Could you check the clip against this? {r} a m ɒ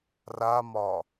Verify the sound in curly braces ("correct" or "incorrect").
correct